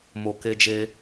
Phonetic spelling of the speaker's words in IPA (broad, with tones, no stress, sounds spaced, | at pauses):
m o˨ k e˧ d͡ʒ e˧